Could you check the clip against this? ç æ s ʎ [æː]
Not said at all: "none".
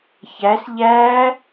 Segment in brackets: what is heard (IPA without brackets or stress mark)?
æː